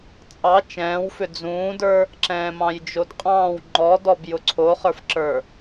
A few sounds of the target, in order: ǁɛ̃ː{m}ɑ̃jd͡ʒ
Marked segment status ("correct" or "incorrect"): correct